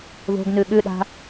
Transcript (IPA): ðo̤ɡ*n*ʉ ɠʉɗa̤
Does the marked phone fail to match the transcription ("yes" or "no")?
no